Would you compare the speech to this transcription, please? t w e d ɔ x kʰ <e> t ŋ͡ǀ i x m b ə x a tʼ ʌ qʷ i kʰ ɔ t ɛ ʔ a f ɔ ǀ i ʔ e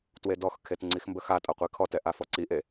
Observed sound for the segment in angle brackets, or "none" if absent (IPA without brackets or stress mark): e